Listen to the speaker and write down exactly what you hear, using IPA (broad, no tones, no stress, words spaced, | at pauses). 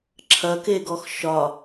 ǁʰɐkeɡɔx ʃɒ